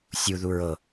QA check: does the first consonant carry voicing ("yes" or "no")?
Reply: no